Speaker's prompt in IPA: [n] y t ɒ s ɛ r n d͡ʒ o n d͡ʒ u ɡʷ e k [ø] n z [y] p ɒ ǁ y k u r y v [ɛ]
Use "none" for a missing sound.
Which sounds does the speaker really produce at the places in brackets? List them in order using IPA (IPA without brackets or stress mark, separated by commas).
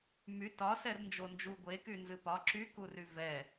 m, y, ɨ, ɛ